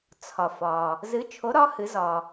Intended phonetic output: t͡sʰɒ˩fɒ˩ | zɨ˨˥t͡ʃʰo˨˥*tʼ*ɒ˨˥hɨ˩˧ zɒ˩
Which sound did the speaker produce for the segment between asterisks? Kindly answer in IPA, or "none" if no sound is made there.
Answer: ɾ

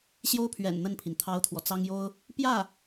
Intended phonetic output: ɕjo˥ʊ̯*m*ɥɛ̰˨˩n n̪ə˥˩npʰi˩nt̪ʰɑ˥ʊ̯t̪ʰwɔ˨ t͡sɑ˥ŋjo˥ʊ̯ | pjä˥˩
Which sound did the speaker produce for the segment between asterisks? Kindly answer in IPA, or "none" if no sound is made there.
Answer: pʰ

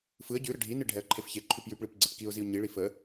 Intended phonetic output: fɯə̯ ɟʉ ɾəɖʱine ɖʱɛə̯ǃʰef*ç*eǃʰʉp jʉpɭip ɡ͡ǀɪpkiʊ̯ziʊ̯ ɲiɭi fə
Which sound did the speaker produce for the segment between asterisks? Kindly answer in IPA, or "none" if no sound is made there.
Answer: ç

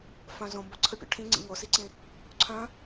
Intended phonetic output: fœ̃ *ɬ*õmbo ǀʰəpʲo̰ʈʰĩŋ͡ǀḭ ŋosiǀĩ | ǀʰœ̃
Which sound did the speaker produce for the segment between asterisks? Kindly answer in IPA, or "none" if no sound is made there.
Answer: z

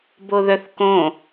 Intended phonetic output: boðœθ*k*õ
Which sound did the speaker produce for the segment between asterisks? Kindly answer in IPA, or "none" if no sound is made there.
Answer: k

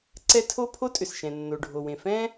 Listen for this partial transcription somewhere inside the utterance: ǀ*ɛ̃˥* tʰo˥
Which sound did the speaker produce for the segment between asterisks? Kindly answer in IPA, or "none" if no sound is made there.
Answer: ɛ˥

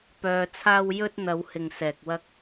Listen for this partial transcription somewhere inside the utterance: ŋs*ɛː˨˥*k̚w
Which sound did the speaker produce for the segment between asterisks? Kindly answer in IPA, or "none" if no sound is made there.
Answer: ɛː˧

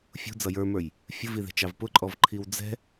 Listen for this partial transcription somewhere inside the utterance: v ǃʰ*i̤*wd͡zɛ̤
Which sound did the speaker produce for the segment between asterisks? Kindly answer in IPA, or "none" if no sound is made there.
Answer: i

